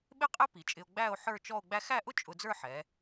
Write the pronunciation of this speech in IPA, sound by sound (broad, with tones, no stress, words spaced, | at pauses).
ɓɪ˥qʼɪ˥ pi˩˧t͡ʃʼɪ˧o̯ ɡ͡bæ˥˧o̯ ħə˞˥˧ t͡ʃɔ˥˧o̯ɡ͡bæ˥ xæ˥˧ʔʊ˥ t͡ʃʼʊ˧d͡zə˞˥˧ħɛ˩˧